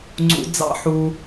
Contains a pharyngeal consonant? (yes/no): yes